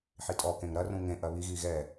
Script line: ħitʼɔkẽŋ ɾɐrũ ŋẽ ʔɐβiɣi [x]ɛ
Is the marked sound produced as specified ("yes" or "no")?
no